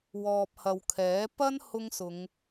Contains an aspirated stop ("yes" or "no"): yes